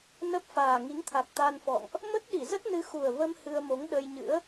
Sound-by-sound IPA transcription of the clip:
n ə˦˥ p̚ f aː˨˩ ŋ i˨˦ ŋ t̪ʰ a˨˩ k̚ t̪ a˧ n f ɔ̰˧˨ ŋ ʔ | m ə˦˥ t̚ ɗ i˧˩ z ə˦˥ t̚ n ɨ˨˦ x u˨˩ ə̯ v ə˧ m h ɨ˧ ə̯ m o˨˦ ŋ ɗ ə˧ j ɲ ɨ̰˧˥ ə̯

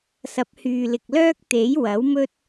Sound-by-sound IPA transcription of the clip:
s ɐ˨˥ p̚ h yː˨ l ɪ˨ k̚ l œː˥ k̚ t̪ e˨˥ j w ɐ˨˥ w m ɵ˥ t̚

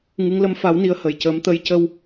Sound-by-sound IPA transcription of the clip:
ŋ ɨ˧˥ ŋ l ə˧˥ m f a˧˥ w n i˧˥ ə̯ h ə˨˩ j c əː˧˥ m t̪ ə˧ j c ə˧ w

